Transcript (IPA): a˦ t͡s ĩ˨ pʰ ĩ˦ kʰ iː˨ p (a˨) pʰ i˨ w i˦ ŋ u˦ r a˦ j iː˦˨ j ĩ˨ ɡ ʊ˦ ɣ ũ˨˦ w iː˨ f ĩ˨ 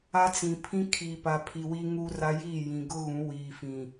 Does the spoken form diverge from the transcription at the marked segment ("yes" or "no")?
no